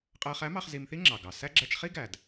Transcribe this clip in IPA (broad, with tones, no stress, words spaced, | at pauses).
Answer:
qʼɜ˧ χæ˧˥mɑ˧χ zi˧m θi˥ŋ͡ǁɑ˩ɡɑ˩sæ˥ ɡ͡ǁæ˧t͡ʃχi˥ ɡæ˩d